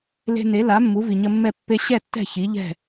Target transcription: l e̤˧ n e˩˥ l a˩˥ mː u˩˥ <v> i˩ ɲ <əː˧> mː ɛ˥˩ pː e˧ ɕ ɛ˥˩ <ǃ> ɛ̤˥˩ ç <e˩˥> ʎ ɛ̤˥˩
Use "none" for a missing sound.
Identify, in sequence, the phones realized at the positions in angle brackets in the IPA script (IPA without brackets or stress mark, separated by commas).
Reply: v, ə˧, tː, i˩˥